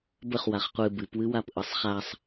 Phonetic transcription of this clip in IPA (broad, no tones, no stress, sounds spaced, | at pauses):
b ə χ w a χ qʷ ɨ b ɨ p w ɨ w a p ʔ ɯ sˤ χ a sˤ